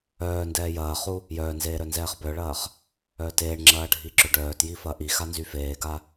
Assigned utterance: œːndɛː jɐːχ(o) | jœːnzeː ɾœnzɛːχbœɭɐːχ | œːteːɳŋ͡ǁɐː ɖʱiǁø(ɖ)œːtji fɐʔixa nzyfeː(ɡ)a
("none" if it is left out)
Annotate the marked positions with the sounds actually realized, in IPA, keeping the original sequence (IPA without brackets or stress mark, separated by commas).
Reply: u, ɖ, ɡ